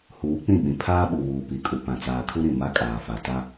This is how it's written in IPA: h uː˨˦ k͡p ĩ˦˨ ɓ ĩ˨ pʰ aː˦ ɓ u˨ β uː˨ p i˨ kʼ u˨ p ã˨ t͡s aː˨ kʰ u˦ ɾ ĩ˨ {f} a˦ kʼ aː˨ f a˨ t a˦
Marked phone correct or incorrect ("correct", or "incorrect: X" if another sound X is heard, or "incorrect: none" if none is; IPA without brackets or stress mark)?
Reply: incorrect: m